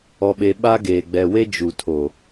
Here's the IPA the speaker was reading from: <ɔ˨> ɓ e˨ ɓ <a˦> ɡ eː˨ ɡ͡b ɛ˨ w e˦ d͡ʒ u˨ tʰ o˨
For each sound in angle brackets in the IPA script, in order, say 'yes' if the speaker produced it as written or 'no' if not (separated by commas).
yes, yes